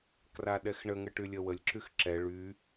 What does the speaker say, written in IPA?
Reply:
k r a ɗ ɛ x ɳ ə ŋ ə ʈ y lʲ ə w ə lʲ ǁ y x ǁ ɛ ɭ y

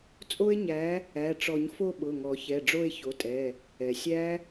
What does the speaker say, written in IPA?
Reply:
t͡sʼ o˦˥ e̯ ɲ æ˨˦ | æ˩˧˩ ʈ͡ʂ ɔ˨˩˦ ɲ f o˥˧ ɓ ʊ˩˧˩ ŋ ɔ˨˩˦ ç ɛ˩˧˩ ɖ͡ʐ o˥˧ e̯ ç o˩˧˩ tʼ ɛ˩˧˩ | ɛ˩ sʲ æ˦˥

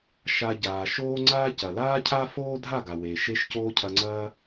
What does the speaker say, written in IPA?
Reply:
ʃ a˧ ɟ aː˨ ʃ oː˦ ŋ͡ǀ aː˦ c ɐ˨ l aː˦ cʰ a˦ f oː˦ dʱ a˦˨ ɡ a˨ w eː˨ ʃ e˦ ʃ c oː˦ cʰ ɐ˧ ŋ͡ǀ ɐː˦

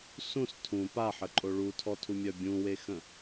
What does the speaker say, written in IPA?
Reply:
s ũ s tʰ ũ p a ħ ə ǃʼ o ɭ u tʰ ɔ tʰ u mʲ œ bʲ ũ w e x ə̃

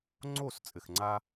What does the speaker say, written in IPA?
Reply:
ŋ͡ǀ o˦˨ s t͡sʼ ɘ˨ x ŋ͡ǀ a˦

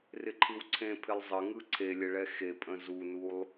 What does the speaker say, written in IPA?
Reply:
r ɪ ǃʰ ɯ w ǀʰ ẽ pʰ ɪ lˠ zˤ ə ŋ ɯ ǀʰ e lʲ ə ɭ ɛ x e pʼ ə̃ z u n u lˠ

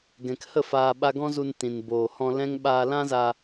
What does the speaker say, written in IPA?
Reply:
ɡ ɛ̃˨ k h ə˦˨ f aː˧ ɓ a˧ ɡ ɔ̃˦ z u˧ n t ĩ˨ n b oː˨ h ɔ̃˧ l ɛ̃˦ ŋ ɓ aː˧ l ã˦ z a˧

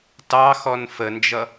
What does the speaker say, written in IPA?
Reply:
t ɑ x ɔ n f ə n d͡ʒ ʌ

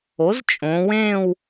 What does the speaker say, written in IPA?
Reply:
o˩˥ z t͡ʃʼ õ˩˧ w ẽː˥˧ w

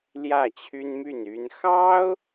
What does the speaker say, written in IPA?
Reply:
l j ä˥˩ t͡ɕʰ y˥ n m y˥˩ n y˥ n x ɑ˥ ʊ̯

